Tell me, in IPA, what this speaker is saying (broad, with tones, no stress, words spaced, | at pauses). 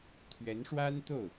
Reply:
t̪ʰɥɛ˧˥nʂwa˥nt̪o˥˩ʊ̯